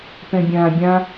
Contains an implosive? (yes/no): no